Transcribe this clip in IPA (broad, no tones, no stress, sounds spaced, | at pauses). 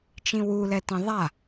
t͡ʃ ĩ w u l ɛ t ĩ ðˤ a